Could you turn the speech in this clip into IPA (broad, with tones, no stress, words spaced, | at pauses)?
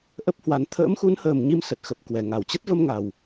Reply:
ʔə˦˥p̚hwa˨˦n t̪ʰə̰ː˧˥mxu˨˦nhəː˨˩m ɲi˧msə˨˩t̚xə˨˩p̚ kwɛ˧˩ŋa˧˩wt͡ɕə˦˥t̚ və˧mŋa˨˩w